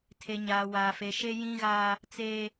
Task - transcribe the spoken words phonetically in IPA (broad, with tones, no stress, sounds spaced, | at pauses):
tʰ e˨ ɲ aː˨ w aː˨ f e˨ ʃ e˦ j ĩ˦ ɣ aː˦ | t͡s eː˦